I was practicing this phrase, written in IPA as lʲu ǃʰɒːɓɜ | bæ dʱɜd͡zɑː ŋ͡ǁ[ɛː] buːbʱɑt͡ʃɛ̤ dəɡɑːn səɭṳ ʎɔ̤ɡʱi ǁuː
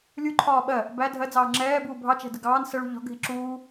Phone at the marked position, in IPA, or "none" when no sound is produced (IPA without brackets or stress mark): ɛː